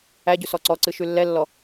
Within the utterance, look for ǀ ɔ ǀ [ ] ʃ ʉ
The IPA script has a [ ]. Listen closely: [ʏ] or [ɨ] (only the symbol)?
ɨ